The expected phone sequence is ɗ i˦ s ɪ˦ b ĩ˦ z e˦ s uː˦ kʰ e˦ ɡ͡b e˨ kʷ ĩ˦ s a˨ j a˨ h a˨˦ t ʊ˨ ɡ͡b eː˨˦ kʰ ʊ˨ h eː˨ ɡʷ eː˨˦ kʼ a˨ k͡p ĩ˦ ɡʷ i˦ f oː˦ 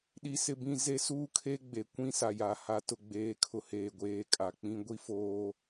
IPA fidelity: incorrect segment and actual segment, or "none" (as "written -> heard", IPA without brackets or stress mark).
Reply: none